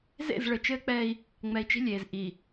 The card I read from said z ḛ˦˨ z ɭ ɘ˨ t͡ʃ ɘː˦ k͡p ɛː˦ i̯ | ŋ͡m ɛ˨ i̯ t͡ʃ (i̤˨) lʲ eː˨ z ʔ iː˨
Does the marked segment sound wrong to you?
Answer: yes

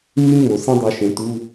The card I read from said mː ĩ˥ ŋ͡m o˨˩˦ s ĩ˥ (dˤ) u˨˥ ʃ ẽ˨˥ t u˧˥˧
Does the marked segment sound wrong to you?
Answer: no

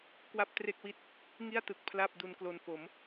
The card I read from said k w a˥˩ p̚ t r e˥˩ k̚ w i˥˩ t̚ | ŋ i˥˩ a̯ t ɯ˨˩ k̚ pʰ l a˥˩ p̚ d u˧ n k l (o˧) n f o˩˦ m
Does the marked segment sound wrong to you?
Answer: no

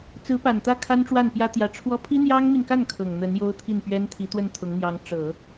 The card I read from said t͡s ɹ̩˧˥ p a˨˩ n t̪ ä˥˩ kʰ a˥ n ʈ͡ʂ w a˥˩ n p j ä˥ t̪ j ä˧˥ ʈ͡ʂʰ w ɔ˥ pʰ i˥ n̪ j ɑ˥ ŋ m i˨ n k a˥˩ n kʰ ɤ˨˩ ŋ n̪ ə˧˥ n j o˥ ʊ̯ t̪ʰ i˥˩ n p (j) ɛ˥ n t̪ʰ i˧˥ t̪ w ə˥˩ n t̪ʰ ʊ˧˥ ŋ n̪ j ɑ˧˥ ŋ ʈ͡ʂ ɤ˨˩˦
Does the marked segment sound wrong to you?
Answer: yes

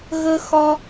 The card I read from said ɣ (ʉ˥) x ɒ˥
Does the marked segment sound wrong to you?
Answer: yes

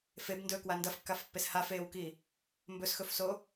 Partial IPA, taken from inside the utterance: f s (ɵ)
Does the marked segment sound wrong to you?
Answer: yes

